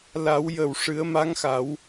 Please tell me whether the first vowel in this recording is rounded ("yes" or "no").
no